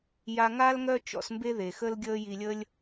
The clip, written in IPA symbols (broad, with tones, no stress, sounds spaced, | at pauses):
j a˧ ŋ a˦ l ŋ œ˦ t͡ʃ ɔ̰˧ s m b e˦ ð e˨ x ə˦ l ɡʲ əː˦ j i˧ lʲ ə˦ lʲ